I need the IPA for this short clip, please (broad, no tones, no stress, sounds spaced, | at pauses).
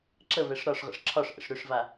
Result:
ǁ ə v ɛ ʂ ɾ ɒ ʂ ʁ ə̰ ʂ ǁʰ ɒ ʂ ʔ ə̰ ʂ ɾ ʏ ʂ v a